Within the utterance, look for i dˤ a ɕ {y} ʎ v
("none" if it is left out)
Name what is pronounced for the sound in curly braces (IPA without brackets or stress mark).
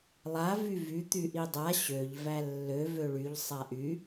ø